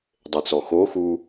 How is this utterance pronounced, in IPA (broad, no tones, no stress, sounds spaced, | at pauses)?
dˤ e t͡s ɔ x o x u